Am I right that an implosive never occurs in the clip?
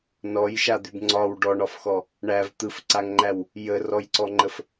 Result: yes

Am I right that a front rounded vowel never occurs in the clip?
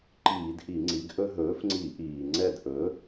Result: yes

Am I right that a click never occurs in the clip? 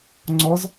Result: no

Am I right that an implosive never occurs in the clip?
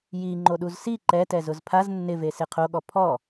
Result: no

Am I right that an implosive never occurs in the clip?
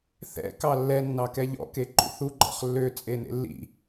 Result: yes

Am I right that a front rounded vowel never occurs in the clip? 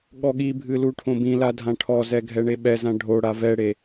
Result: yes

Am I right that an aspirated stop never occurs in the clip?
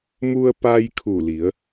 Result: no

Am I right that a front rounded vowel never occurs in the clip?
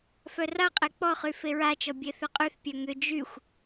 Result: no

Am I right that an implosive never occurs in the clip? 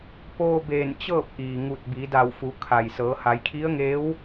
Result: yes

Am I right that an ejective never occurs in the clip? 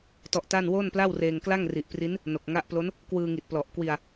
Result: yes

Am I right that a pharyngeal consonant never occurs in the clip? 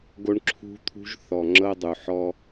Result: no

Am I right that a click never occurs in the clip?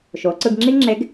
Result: no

